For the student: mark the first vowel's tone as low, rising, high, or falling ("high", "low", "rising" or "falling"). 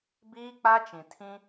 high